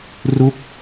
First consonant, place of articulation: alveolar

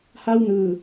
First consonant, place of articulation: glottal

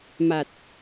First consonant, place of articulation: labial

